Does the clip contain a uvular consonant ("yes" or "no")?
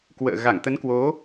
no